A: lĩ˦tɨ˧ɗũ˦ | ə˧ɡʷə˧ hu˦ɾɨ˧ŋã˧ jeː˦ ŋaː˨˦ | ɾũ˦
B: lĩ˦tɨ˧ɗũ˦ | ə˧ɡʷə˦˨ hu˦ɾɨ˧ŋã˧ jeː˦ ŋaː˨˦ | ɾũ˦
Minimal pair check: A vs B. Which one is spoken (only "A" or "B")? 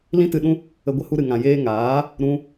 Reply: A